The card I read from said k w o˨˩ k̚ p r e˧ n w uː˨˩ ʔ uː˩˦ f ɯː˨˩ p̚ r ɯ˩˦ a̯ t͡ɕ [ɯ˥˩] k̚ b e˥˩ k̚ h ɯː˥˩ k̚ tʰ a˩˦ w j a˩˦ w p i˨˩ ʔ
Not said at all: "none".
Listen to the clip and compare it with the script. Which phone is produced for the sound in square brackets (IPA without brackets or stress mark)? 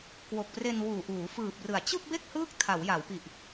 ɯ˥˩